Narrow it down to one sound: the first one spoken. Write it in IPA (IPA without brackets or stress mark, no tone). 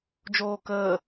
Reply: d͡ʒ